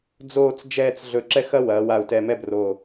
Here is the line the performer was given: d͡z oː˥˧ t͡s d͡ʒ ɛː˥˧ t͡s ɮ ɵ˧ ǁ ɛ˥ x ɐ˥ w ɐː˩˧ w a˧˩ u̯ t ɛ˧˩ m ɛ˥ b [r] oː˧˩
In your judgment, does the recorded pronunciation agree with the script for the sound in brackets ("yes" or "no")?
yes